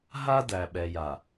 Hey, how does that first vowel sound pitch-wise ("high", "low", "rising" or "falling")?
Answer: high